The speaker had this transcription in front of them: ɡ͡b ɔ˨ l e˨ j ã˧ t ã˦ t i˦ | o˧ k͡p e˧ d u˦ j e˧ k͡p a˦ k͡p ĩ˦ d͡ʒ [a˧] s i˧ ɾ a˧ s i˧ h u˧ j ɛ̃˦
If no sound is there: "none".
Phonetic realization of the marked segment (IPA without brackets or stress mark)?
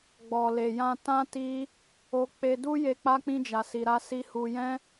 a˧